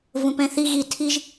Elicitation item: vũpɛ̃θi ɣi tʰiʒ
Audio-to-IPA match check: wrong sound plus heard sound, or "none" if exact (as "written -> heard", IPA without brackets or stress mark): none